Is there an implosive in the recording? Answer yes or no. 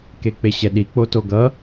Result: yes